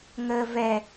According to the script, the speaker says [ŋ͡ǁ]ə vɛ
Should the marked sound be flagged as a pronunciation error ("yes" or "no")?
yes